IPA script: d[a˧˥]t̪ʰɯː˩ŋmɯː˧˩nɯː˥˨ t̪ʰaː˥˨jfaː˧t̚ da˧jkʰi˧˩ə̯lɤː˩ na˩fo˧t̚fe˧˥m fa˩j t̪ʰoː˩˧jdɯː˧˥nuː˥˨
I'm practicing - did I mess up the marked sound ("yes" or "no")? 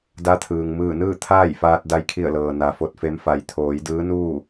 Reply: no